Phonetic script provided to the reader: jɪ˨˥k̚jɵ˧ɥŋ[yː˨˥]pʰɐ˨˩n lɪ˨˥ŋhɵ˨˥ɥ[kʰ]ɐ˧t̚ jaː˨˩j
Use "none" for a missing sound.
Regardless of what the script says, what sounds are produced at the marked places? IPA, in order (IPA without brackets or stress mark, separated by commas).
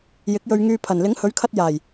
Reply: yː˧, kʰ